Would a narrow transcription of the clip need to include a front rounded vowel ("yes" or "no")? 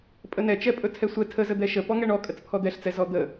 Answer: no